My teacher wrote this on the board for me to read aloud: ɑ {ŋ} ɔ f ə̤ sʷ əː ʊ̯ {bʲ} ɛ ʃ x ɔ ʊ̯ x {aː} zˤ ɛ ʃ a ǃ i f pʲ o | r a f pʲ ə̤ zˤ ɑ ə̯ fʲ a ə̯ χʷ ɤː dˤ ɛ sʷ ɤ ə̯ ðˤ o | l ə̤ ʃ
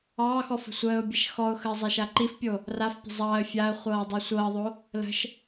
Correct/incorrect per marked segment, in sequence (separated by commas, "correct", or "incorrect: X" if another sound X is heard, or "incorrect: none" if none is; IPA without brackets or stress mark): incorrect: x, correct, incorrect: əː